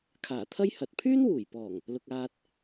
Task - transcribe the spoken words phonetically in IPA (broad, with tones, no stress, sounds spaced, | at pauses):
kʰ aː˨˩ t̪ʰ ɐ˥ j h ɐ˨ t̚ pʰ yː˥ n w uː˨˩ j p ɔː˨˩ ŋ | l ʊ˨ k̚ aː˧ t̚